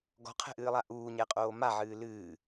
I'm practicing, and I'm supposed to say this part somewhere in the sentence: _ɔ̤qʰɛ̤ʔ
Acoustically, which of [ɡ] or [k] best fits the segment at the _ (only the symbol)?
ɡ